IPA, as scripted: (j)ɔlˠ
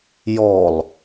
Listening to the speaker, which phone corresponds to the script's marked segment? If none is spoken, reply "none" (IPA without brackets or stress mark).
j